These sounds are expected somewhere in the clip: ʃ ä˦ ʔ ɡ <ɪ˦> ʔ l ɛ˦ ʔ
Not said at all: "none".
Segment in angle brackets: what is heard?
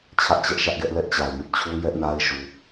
ɛ˦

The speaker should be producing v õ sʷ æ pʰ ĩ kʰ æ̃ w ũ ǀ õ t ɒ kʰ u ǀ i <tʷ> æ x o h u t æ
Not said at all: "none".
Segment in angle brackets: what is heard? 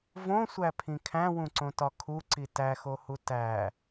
t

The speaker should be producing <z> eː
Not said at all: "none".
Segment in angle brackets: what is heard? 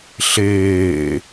ɬ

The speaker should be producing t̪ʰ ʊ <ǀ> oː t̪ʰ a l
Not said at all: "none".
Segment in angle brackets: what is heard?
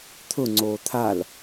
ŋ͡ǀ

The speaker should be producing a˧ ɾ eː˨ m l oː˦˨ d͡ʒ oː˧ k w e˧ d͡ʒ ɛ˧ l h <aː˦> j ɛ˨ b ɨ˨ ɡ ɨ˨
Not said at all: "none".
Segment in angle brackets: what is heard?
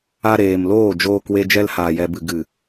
aː˨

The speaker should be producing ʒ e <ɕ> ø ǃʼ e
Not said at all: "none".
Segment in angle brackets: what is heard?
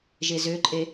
z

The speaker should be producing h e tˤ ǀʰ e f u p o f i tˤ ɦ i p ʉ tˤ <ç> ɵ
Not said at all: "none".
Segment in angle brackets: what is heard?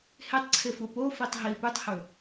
h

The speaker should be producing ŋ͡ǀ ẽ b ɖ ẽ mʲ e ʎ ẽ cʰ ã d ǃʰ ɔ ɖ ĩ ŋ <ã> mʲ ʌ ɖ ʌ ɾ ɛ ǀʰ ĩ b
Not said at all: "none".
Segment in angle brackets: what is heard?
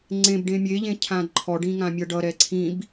ã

